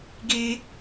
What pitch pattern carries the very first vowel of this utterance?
high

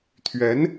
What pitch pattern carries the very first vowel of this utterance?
rising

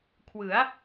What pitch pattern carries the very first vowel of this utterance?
rising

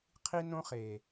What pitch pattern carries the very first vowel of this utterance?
high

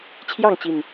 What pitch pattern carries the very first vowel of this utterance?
falling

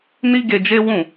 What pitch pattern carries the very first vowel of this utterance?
high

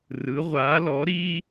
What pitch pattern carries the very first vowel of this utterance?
rising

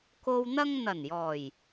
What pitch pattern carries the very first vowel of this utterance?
low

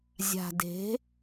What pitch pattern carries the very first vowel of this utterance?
low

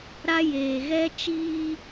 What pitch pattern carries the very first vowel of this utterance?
high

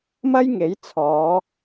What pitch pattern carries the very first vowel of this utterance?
high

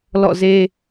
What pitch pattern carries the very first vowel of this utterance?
falling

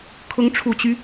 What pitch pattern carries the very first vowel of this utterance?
rising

